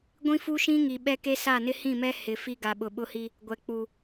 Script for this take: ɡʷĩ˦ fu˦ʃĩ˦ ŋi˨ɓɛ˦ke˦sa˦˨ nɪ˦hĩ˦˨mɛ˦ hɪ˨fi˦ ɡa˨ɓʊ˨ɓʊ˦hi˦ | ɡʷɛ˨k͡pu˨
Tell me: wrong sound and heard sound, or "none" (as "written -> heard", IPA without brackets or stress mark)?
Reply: none